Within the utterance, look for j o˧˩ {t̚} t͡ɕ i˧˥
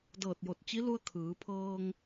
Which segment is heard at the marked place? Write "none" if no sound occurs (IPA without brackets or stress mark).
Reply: t̚